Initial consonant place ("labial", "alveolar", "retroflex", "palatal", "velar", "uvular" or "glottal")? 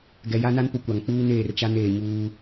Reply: velar